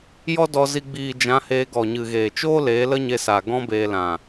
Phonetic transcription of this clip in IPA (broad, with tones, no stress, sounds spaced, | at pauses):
j ɔ˦ d ɔ˧ z i˧ ɡ͡b iː˨ d͡ʒ ã˨˦ h eː˧ ɡ ɔ˨ ɲ ɨ˨ ɣ eː˨ t͡ʃ oː˦ l eː˨˦ l ə˦ ɲ e˧ s aː˨ ɡ ɔ̃˦ b eː˧ l ã˨